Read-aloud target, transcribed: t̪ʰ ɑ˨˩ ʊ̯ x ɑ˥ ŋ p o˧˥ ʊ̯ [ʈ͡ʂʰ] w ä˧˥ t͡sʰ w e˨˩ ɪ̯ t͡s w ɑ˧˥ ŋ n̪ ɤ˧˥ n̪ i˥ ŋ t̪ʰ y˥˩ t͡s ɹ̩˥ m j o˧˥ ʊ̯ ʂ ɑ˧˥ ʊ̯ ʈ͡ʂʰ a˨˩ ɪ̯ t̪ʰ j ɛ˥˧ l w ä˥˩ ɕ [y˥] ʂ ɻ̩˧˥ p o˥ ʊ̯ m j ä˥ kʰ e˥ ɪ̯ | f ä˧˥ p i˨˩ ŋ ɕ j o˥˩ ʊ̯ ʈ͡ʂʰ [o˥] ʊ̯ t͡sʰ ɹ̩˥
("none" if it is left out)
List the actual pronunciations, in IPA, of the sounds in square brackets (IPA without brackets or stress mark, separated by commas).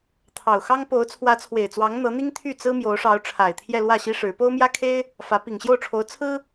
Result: t͡sʰ, i˥, o˧˥